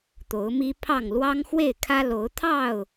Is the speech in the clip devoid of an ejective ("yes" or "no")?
yes